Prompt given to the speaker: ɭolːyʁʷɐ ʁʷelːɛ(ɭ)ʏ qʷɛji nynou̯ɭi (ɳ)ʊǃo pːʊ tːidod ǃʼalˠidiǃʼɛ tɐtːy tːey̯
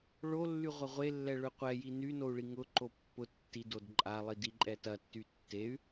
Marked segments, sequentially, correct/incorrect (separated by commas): correct, incorrect